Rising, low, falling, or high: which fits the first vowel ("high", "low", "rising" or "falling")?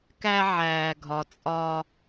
high